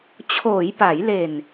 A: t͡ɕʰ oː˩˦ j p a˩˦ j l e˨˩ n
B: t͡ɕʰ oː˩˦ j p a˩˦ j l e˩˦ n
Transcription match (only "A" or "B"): A